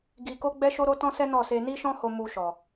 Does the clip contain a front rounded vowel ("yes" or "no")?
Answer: no